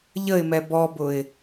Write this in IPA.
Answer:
ʎ ə ɪ̯ m ɛ b ɔ b ʊ ɪ̯

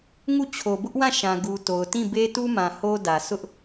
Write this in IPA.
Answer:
ŋ u˦˨ t͡ɕʰ o˨ b ʊ˦ ʔ w ã˦˨ ʃ ã˨ ɡ u˨ t o˨ ʊ̯ t ĩ˦˨ b e˦ t u˦ m ã˨ h o˦ d ä˨ sʰ ʊ˦ ʔ

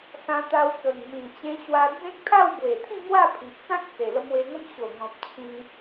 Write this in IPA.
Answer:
s ã˧ t̪ a˧ w k ə˨˩ ŋ m ĩ˨˩ t͡ɕ ẽ˧ ɕ w a˧ d͡z ẽ˦ k̚ t̪ʰ a˥˧ w b w e˨˩ t̪ʰ ĩ˥˧ ŋ w a˥˧ pʰ i˨ ʔ t͡s ã˦ k̚ t͡s e˨˩ l ə˧ m w e˧ ŋ ə˦ m ɕ o˨˩ ŋ ɔ̃˨ p̚ t͡ɕʰ ĩ˧

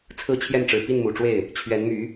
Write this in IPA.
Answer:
t͡sʰ ɹ̩˥˧ t͡ɕʰ j ɛ˥˩ n ʈ͡ʂ ɻ̩˨˩ p i˥˩ n m u˨˩ ʈ͡ʂ w e˥˩ ɪ̯ | t͡ɕʰ ɥ ɛ˧˥ n m y˧˥

